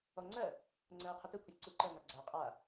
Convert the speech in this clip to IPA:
ɔŋ͡ǀɜ | ŋ͡ǀɜːqʰʊtɘ kʷʰisʲǀuǃɜ ŋaɡ͡ǀa qʼa

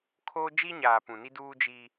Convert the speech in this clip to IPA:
kʰoː˦ d͡ʒi˦ɲaː˨ pũ˨ni˦duː˦ d͡ʒi˦

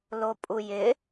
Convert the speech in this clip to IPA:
lopʼujɪ

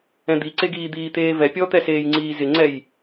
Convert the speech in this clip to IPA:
ɛ̃d̪iǀeɡiː d̪iːt̪eːvɛ pʲɔt̪ɛseːjŋ͡ǀiː zɪŋ͡ǀɛj

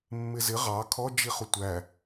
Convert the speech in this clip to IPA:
mːɪzɪ ʁɑ kʰɔd͡ʒiχu tʷæ

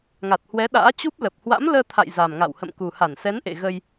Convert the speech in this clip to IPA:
ŋa˨˩t̚hwɛ˨˦ɗa̰ː˧˥ t͡ɕu˦˥p̚lə˨˩p̚ hwa̰˧˥mləː˧ t̪ʰa̰˧˨j za˨˩mŋa̰˧˨w hə̰˧˨mku˨˩ ha˧˩nsɛ˨˦nʔḛ˧˨ ɣə˧j

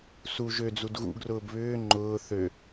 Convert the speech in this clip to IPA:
suʒ ød͡zud ɣṵɡrʊːb βʏː ŋ͡ǃʊː θø

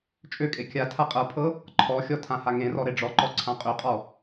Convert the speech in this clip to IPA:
t͡ʃʼøkʼe kʲa tʰaqʼɤpʰɤ | ǃʰɔxʲɔ tʰãhaŋẽrɔ ɾeɖ͡ʐɔǃɔ ǀʰãqʼøqʼɔ

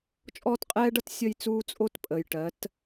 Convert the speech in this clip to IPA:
t͡ʃʼɔː˦tqʼɛː˦ɖʌ˦t sʲə˦jt͡suː˦t͡sʼo˦t pʼəː˨j ʈɜ˨˦t

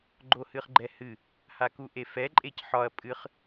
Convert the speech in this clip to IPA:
ɡ͡ǃohɨχɡ͡ǃɛhɨ | hakuʔefɛ ǃʼecħɒɐ̯ pʼɨχ

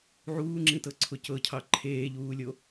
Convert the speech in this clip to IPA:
ʕuːŋ͡ǁĩtɤǀʰʊ cɤcʰɑ ǃʰeːʎuːlʲo

